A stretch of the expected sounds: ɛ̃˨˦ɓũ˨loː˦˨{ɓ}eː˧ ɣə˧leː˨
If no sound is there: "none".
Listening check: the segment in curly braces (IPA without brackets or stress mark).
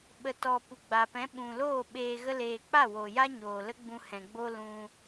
ɓ